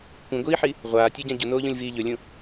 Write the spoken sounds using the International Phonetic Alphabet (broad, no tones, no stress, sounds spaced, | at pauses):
kʷ ĩ ɡʷ iː ħ i | ʁʷ aː tʲ o ɟ ã ɟ u n oː ʎ ũ lʲ v iː ʎ ɵ lʲ ũ